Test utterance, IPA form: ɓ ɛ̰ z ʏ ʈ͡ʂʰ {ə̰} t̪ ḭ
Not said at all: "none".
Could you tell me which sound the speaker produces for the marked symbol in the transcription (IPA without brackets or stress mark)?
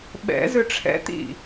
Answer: ɛ̰